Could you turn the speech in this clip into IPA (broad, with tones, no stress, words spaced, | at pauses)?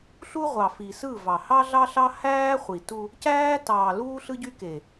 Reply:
ɬu˦ʁʷɑ˨fi˨ sɯ˦˨vɑ˨ hɑ˦ɮɑ˦ɬɑ˦ hæː˦χʷi˨tu˦ | cæː˦tɑː˨ luː˦ɬɯ˦ɟy˦ke˨